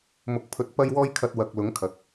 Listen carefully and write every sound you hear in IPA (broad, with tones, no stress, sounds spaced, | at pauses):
m ʊ˨˥ k̚ pʰ ɵ˨˥ t̚ p ɐ˧ j w ɔː˧ j kʰ ɐ˨ t̚ w ɐ˨ k̚ l ʊ˨˥ ŋ kʰ ɐ˨ k̚